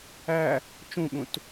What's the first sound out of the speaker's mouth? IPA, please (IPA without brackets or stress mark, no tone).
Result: æ